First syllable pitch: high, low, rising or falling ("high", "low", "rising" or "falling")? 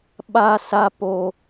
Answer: high